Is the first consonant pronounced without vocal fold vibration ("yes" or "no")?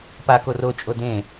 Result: yes